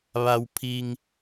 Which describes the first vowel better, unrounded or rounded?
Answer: unrounded